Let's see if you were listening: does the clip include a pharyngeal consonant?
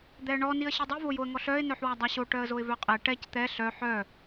yes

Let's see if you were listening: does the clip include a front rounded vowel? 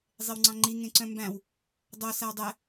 yes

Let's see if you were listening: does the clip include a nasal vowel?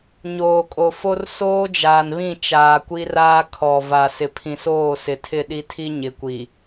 yes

